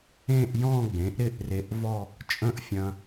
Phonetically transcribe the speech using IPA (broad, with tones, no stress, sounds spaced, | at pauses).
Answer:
ẽ˥˧ ʔ j ɔ̃˥˧ ɡ͡b ẽ˩˥ ʔ ɾ ɪ˥˧ ʔ r e˧ ʔ v ɔ˥˧ | t͡ʃʼ ə̃˥˧ ʔ fʲ ɐ̃˧